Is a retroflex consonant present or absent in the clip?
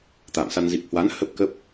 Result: absent